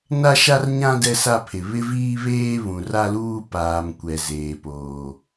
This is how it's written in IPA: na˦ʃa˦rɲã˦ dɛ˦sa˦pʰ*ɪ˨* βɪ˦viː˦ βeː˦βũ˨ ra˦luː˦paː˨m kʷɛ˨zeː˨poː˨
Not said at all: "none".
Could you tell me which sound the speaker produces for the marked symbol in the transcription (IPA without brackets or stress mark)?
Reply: ɪ˨